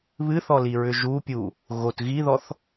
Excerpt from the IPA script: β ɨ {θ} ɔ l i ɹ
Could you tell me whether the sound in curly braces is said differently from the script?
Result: no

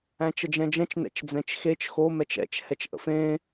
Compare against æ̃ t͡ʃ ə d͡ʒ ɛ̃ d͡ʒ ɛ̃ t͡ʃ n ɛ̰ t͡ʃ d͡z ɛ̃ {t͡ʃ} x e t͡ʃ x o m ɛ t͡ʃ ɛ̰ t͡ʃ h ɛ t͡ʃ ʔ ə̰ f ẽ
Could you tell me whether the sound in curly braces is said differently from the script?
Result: no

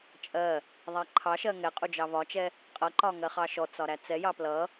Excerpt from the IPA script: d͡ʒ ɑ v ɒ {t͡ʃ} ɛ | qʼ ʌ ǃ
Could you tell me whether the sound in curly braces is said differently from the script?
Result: no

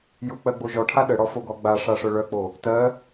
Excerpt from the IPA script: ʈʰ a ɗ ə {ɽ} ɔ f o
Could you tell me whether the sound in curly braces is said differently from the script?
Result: no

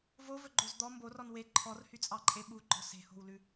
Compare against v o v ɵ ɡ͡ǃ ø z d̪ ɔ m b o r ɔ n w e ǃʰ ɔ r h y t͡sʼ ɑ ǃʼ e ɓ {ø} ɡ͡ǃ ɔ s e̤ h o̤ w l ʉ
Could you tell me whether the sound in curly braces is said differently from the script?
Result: yes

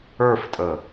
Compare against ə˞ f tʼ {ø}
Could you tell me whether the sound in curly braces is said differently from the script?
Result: yes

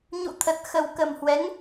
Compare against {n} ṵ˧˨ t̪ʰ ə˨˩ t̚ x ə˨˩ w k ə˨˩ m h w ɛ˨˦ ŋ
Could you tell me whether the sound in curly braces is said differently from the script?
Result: yes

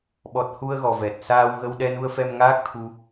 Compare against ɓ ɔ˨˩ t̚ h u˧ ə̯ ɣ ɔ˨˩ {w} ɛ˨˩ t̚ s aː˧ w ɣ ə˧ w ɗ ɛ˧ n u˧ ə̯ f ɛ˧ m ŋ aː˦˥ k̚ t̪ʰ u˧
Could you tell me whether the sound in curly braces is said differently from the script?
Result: yes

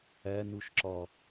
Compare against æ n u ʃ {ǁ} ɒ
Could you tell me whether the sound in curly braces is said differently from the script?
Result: no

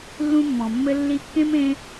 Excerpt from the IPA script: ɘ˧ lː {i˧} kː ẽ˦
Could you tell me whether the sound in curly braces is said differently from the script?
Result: no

